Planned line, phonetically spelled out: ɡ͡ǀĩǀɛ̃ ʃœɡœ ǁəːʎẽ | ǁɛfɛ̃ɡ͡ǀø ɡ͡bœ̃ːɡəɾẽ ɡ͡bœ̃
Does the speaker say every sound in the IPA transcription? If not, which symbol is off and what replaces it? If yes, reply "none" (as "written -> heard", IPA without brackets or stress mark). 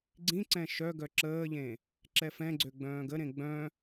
none